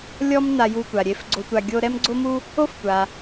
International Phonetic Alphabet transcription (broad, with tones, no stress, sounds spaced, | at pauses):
lʲ ɔ˥ m n a˧ j u˧ tʷ a˩ ɾʲ e˧ f ɡ͡ǀ o˧ tʷ a˧ ɡʲ o˥ ɾ ɛ˥ m ɡ͡ǀ o˥ m u˥ | o˥ f tʷ a˩